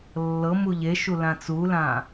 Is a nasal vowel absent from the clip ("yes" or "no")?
no